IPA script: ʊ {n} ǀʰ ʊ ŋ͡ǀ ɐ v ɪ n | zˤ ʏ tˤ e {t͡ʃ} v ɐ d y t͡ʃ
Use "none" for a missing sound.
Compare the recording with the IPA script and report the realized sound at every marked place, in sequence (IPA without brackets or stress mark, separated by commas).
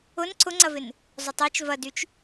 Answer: n, t͡ʃ